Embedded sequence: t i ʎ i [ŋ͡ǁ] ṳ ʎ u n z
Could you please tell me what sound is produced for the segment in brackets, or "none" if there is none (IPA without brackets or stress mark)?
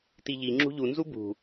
ŋ͡ǁ